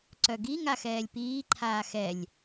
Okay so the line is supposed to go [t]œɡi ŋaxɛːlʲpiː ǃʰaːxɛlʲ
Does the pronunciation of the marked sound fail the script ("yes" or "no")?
yes